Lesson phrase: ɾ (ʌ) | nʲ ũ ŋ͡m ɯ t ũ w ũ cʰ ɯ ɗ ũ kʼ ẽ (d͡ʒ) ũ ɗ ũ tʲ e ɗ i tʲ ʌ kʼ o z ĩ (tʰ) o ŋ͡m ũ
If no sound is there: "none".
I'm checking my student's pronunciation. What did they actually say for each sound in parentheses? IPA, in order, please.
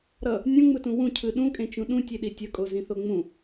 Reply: ʌ, t͡ʃ, θ

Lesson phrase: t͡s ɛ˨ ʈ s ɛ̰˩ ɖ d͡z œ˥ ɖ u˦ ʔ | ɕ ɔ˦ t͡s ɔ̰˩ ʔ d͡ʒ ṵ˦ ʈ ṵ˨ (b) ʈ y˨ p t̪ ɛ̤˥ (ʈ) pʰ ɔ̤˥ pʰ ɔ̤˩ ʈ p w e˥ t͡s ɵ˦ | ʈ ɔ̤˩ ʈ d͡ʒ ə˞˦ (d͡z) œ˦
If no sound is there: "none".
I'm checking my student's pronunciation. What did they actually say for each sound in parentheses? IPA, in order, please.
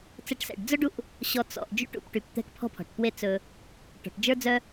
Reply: p, k, d͡z

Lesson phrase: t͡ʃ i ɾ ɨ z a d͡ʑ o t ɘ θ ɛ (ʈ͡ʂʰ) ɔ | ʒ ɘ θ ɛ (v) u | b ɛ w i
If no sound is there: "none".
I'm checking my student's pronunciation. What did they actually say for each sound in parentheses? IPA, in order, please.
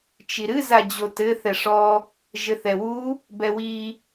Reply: ʂ, w

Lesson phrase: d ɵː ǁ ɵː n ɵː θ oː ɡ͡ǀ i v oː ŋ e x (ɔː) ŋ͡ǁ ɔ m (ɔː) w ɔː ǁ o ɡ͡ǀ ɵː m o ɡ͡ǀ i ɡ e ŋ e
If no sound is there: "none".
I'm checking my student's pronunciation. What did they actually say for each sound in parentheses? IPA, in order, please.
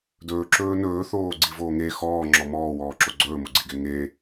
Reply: ɔː, ɔː

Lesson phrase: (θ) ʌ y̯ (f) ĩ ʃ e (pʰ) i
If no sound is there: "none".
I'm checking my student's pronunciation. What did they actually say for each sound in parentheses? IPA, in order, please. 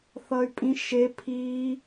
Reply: θ, pʼ, pʰ

